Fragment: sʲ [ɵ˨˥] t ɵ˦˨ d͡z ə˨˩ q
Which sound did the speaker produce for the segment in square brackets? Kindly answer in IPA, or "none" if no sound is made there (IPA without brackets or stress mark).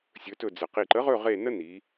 ɵ˨˥